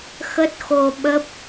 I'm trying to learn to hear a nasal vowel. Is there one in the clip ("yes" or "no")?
no